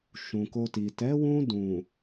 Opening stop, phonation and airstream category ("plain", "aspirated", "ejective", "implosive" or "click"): plain